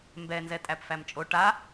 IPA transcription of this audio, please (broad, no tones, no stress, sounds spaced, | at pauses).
m b ɛ n z ɛ tʼ æ p f æ m t͡ʃʼ o ʈ a